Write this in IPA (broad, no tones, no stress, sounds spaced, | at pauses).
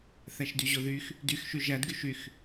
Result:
θ æ ʃ d y ʑ o ð y x | d y x ʃ y ʒ æ d ɡ y ʃ y x